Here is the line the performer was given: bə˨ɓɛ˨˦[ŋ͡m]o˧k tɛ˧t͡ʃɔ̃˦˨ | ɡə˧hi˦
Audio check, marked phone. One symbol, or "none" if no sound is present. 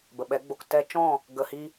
ɡ͡b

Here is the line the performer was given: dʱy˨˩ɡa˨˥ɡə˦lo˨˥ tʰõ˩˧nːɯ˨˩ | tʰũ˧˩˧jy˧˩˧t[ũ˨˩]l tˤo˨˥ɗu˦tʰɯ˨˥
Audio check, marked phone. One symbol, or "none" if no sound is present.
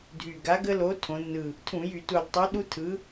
u˨˩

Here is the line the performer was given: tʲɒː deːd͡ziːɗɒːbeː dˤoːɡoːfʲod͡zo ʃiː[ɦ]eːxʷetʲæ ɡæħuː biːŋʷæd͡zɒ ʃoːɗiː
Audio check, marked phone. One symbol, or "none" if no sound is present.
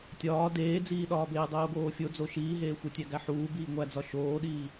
ɦ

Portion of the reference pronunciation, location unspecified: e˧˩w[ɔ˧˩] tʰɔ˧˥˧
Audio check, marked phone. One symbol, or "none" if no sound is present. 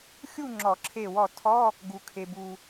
ɔ˧˩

